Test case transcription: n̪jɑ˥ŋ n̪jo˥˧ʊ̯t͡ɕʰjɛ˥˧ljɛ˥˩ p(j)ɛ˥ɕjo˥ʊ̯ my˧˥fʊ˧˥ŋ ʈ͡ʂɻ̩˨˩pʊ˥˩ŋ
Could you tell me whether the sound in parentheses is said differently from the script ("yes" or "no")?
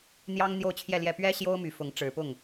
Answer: yes